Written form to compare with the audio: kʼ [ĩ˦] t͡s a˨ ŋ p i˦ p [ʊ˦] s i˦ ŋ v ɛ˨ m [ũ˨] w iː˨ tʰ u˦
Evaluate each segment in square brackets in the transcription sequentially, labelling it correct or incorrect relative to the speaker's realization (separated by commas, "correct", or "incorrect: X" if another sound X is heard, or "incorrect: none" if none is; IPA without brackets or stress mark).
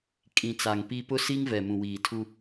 incorrect: ĩ˨, correct, correct